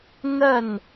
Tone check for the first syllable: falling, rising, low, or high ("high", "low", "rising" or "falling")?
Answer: falling